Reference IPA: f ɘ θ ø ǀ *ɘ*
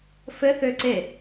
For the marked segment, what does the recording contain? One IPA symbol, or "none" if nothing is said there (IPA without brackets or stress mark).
e